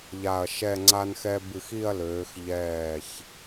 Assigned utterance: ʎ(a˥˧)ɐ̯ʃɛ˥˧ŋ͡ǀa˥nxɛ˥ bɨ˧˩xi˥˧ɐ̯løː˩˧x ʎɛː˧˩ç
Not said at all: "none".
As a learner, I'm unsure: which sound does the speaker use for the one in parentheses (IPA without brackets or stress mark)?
a˧˩